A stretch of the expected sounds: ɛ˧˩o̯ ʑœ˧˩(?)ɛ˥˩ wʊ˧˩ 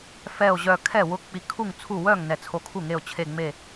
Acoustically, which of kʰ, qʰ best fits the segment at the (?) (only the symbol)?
kʰ